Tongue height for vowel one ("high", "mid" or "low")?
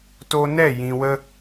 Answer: mid